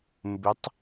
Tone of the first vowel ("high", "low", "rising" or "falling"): rising